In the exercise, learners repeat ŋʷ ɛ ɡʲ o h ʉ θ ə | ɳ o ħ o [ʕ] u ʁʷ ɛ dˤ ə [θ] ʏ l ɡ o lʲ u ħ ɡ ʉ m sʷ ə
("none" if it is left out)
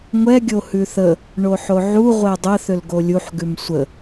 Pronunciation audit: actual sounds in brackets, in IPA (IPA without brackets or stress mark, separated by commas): ʕ, θ